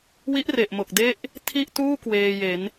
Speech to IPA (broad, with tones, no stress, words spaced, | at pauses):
wi˦˥ʔre˨˩ʔmo˨˩k̚ de˥˩ʔ | tʰi˥˩ʔtuː˥˩ kweː˧je˩˦n